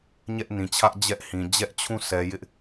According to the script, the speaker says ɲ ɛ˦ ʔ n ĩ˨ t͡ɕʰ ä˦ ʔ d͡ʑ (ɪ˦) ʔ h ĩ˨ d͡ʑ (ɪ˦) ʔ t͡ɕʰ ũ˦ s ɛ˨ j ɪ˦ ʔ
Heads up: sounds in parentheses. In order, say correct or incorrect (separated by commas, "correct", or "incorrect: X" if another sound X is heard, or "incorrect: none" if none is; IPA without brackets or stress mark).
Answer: incorrect: ɛ˦, incorrect: ɛ˦